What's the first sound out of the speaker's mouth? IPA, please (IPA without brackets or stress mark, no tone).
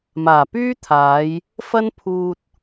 m